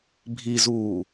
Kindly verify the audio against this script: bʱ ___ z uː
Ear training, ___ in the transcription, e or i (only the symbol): i